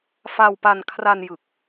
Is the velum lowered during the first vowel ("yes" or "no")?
no